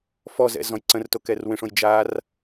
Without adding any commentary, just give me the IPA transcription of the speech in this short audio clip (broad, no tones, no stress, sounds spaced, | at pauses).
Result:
f ɔ z ɛ̰ z ɔ̃ j ǀ ə̃ r t o k ɛ r w ẽ ʂ õ j d͡ʒ a r